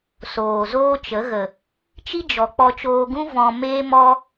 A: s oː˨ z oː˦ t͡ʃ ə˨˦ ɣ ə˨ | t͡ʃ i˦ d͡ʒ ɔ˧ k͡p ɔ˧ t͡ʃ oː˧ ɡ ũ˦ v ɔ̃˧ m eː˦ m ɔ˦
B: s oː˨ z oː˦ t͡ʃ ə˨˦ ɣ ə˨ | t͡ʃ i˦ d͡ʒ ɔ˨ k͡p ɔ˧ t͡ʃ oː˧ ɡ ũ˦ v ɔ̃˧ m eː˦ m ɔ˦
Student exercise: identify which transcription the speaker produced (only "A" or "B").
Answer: B